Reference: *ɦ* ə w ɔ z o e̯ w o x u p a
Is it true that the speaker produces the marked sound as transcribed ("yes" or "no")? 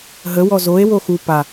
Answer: yes